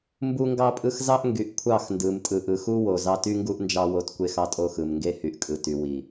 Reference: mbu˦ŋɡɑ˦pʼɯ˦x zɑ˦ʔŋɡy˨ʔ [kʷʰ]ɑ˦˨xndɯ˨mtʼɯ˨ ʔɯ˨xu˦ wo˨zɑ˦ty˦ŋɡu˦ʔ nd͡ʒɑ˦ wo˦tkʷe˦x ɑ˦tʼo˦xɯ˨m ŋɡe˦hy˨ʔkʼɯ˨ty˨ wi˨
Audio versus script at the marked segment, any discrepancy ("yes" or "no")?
no